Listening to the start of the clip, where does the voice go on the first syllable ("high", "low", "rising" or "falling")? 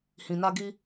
low